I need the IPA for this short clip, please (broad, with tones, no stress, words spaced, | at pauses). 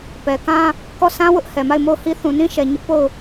pɛ˨kã˦ | kɔ˦˨sʰã˦ wʊ˦ʔhɛ˨ ma˦˨ɪ̯mo˦˨ʊ̯hi˦ θũ˨nĩ˦ ʃɛ˨ ɲʊ˦ʔ po˦˨ʊ̯